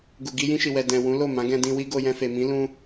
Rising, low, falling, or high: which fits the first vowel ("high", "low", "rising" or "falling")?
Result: low